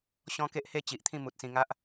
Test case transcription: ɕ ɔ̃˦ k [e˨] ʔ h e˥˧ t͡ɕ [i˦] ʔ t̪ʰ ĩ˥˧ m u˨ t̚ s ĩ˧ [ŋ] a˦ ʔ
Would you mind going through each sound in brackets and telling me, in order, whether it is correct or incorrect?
incorrect: e˦, incorrect: i˨, correct

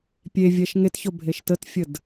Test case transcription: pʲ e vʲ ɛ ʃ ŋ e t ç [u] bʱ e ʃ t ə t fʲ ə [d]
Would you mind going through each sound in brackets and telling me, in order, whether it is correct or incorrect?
incorrect: o, correct

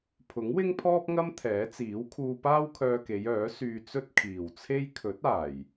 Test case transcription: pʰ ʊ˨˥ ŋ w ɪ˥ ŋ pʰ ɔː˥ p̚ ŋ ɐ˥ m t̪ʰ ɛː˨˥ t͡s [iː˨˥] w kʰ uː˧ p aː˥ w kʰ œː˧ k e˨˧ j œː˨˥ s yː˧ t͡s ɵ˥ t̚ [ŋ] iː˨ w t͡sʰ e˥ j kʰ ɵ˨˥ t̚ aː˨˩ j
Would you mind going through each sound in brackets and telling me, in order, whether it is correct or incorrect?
correct, incorrect: kʰ

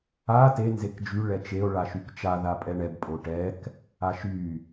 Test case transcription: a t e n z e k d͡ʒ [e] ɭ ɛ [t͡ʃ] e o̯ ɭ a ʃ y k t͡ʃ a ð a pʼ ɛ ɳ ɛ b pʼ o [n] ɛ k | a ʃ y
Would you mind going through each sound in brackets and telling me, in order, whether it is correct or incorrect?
incorrect: y, correct, incorrect: ʈ

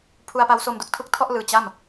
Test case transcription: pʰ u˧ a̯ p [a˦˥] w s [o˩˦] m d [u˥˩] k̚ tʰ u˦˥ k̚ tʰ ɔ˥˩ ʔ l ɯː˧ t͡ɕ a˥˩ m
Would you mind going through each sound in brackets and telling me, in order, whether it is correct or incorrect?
correct, incorrect: o˧, incorrect: u˦˥

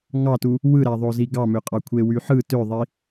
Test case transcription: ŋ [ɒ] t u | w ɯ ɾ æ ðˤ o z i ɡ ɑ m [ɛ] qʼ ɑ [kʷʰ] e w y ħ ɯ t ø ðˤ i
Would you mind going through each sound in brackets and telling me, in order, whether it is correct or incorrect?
incorrect: ɑ, incorrect: ø, correct

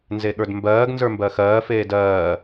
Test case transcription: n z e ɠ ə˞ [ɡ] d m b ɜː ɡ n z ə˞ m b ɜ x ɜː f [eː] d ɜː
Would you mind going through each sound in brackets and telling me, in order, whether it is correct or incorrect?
incorrect: none, correct

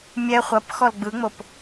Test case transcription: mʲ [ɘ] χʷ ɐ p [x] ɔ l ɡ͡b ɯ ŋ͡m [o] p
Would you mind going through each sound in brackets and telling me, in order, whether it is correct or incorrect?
incorrect: ɛ, correct, correct

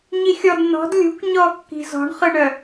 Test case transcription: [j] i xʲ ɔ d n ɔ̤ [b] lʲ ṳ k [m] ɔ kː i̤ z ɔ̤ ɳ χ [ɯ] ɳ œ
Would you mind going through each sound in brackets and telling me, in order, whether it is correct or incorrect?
incorrect: ɲ, incorrect: d, incorrect: ɲ, correct

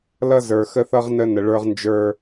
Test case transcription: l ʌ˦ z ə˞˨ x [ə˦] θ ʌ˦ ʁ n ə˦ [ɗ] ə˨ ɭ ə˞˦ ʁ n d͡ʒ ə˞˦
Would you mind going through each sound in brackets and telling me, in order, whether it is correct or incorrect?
correct, incorrect: n

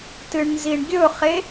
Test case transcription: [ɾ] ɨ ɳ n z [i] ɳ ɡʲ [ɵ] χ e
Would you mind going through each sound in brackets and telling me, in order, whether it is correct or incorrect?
incorrect: t, correct, correct

